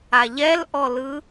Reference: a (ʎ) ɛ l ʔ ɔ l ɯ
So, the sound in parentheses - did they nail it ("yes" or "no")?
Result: yes